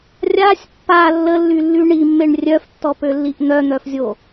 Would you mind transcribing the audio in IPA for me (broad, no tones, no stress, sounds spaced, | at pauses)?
rʲ a sʲ pː a lː ə lː y lː y ɳ i mː e ɳ rʲ œ f tː ɔ p ø lː i ʔ n̪ œ n̪ œ f zʲ o